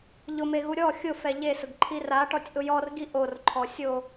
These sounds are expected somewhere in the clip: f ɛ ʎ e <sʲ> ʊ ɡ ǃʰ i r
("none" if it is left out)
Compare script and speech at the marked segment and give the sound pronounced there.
s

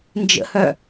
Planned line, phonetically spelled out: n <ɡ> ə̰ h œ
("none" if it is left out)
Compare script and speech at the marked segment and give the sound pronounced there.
d͡ʒ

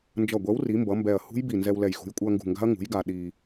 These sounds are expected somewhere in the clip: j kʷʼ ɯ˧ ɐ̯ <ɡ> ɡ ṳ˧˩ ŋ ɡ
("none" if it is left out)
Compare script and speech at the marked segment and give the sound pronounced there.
ŋ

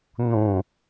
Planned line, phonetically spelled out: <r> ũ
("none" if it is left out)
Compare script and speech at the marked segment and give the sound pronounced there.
n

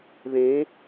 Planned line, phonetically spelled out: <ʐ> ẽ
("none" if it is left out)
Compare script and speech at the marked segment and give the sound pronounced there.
ð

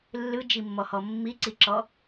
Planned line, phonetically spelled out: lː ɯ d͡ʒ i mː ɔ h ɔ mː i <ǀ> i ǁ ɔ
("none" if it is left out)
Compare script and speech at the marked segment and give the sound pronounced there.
ǀ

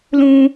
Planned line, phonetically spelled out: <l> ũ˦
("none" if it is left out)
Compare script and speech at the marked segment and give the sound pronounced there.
l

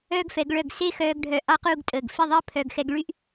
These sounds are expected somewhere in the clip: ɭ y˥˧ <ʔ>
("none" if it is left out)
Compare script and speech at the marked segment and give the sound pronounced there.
ʔ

